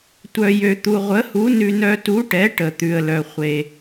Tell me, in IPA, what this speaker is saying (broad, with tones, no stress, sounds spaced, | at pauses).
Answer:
tʷ œ˧ j ø˧ t̪ u˧ ʁʷ ə˨˥ h u˨˥ n ʉ˧ n œ˧ t u˨˥ ʈ ɛ˨˥ ʈ ə˧ t̪ ʉ˧ ə̯ l œ˧ χʷ e˧